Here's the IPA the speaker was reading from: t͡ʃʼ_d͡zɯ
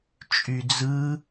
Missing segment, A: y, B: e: A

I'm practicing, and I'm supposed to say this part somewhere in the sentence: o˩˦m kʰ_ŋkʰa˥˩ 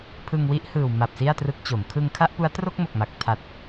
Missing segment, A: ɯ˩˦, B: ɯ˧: B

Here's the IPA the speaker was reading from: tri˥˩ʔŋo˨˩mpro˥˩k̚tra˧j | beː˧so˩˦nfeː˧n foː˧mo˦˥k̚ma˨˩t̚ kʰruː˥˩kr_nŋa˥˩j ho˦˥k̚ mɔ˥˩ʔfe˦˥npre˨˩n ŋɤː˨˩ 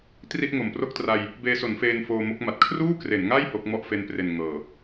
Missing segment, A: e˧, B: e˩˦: B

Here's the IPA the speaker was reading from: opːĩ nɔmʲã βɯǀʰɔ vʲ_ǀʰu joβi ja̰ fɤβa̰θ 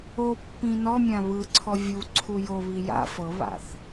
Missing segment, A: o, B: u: B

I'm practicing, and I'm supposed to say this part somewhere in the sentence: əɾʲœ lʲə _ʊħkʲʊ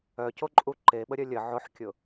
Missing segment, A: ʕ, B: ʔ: A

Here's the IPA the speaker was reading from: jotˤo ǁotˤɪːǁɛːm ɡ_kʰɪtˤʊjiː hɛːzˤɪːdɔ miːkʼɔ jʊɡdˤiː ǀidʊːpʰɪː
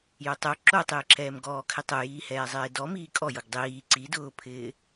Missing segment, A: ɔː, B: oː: A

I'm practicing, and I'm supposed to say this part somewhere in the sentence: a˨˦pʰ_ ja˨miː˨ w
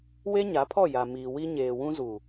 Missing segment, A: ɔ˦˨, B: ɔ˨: A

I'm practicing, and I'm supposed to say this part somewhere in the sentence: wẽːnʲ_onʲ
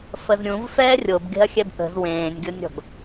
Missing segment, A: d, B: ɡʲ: B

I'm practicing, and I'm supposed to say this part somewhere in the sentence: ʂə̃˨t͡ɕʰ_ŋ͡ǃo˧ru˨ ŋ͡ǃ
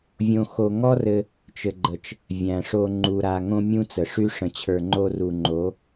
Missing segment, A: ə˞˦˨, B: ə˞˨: B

